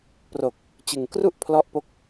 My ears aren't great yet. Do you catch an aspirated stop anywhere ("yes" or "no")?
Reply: yes